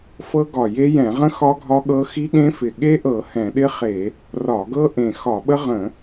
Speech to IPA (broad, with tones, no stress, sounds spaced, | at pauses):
f ɤ˦˥ ɡ ɒ˧˩ j e˦˥ j ɛ̃˧˩˧ ʁ ə̃˦˥ x ɒ˦˥ ɡʱ ɒ˦˥ ɠ ɤ˦˥ x i˦˥ ɠ ẽ˦˥ f ɪ˧˩ ɠ e˦˥ ʔ ɤ˧˩˧ h ɛ̃˧˩˧ ɗ ɪ˦˥ χ e˧˩˧ | r ɒ˧˩˧ ɡ ɤ˦˥ ʔ ẽ˧˩ x ɒ˧˩˧ ɓ ə˦˥ ʁ ə̃˧˩˧